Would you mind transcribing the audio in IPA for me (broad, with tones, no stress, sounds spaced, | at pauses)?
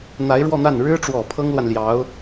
n̪ a˧˥ ɪ̯ ɻ w ɔ˥˧ n̪ a˥˩ n ɻ ɻ̩˥ ʈ͡ʂ w ɔ˨˩ pʰ ɤ˥ ŋ l w a˨ n l j ɑ˧˥ ʊ̯